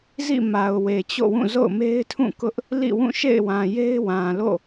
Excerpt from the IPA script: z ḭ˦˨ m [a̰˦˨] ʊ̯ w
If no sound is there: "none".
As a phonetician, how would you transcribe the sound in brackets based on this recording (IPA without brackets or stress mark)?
a˨